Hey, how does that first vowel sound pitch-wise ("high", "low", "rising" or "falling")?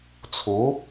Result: rising